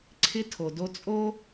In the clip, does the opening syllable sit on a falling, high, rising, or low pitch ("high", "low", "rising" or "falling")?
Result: high